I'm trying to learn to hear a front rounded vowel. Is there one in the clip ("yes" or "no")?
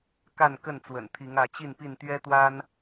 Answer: no